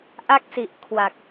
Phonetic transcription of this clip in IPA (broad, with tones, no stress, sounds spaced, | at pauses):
ʔ a˥˩ k̚ s i˨˩ ʔ kʰ w a˨˩ k̚